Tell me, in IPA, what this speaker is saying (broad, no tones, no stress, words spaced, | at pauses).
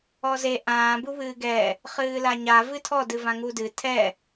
ɔze ʔãː buβɨːɡɛ | χɨːlaɲa vɨtʰɔ dɨvãŋudɨ tʰɛ